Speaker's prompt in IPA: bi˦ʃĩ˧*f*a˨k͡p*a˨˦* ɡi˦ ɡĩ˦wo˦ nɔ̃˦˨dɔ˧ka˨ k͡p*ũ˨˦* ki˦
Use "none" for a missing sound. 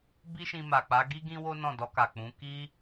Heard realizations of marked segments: m, a˨˦, ũ˨˦

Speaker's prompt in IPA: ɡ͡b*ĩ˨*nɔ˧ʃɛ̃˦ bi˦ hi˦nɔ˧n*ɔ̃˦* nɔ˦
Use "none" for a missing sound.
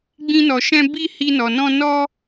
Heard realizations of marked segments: ĩ˦, ɔ̃˦

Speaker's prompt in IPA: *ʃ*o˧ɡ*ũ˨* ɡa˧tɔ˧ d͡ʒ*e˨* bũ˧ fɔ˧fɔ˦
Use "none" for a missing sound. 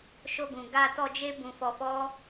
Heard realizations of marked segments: ʃ, ũ˨, e˦

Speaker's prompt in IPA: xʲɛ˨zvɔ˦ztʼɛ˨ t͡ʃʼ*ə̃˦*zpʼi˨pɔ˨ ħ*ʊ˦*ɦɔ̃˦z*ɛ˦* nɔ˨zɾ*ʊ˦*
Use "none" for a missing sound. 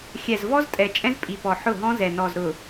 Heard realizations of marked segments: ɛ̃˦, ʊ˦˨, ɛ˨, ʊ˨

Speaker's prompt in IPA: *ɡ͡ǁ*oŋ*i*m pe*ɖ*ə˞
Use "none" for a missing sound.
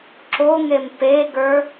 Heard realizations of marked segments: ǁ, e, ɡ

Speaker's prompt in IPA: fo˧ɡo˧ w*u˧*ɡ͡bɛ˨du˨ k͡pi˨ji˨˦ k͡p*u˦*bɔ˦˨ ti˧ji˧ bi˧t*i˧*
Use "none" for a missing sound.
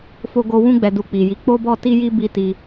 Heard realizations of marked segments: ũ˧, o˦, i˧

